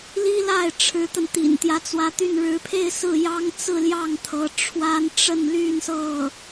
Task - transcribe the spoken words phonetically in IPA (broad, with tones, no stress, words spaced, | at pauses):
li˥la˥˩ɪ̯ʈ͡ʂʰɻ̩˧˥t̪ə˧n t̪ḭ˨˩nt̪jä˧˥t͡swä˧˥t̪y˥˩n ɻɻ̩˧˥pʰe˥˧ɪ̯sɹ̩˥˩ jɑ˥ŋt͡sɹ̩˥˧ljɑ˥˩ŋt̪ʰɤ˧˥ ʈ͡ʂʰwa˥nʈ͡ʂə˥˧nly˥˧n sɤ˥˩